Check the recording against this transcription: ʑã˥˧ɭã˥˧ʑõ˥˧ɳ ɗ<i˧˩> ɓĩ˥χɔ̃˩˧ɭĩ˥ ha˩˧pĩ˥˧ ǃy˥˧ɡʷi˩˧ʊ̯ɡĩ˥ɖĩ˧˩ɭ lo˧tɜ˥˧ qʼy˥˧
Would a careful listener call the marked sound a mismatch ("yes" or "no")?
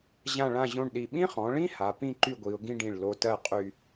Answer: no